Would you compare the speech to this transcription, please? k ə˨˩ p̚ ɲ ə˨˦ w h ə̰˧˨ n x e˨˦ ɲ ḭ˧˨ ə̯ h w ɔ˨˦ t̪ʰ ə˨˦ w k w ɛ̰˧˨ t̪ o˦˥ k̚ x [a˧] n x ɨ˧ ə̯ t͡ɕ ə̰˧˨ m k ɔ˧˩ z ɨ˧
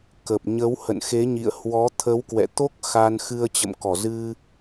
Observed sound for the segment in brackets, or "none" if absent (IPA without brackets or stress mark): a˧